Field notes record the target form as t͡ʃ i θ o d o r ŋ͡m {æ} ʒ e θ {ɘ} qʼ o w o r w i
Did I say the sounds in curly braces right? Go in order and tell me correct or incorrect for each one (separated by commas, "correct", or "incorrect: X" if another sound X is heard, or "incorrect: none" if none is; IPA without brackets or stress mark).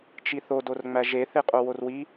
correct, incorrect: e